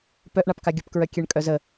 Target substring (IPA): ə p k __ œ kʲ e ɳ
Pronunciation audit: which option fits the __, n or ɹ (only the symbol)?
ɹ